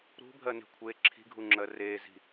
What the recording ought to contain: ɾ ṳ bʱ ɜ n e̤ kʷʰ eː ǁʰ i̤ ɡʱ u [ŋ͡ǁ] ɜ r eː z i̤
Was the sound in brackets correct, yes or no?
yes